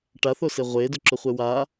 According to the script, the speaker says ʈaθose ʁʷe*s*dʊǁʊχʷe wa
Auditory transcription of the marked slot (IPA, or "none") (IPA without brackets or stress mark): none